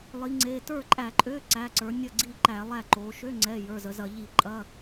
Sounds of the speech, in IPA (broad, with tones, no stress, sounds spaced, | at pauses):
lˠ i˩˧ ŋ͡ǀ e˩˧˩ t ə˞˥˩ ǃʼ æ˧˩˧ ǃʼ ø˧˥˧ ǀ æ˩˧˩ ǀ ə˞˩˧ nʲ ɐ˥˩ ɡ͡ǀ i˥˩ ǃ æ˧˩˧ lˠ æ˥˩ ǃ o˩˧ ʃ ø˧˥˧ ŋ͡ǀ ɛ˩˧˩ j ə˞˩˧˩ z ə˩˧ z ɐ˧˩˧ ʎ i˧˩˧ ǃʼ ɐ˧˥˧